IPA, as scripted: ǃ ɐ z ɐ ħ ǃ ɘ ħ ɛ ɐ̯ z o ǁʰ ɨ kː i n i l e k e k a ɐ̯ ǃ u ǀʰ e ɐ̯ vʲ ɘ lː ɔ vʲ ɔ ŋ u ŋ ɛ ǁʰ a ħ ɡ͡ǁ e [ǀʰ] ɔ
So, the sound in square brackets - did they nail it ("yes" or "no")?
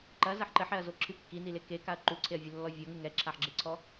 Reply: yes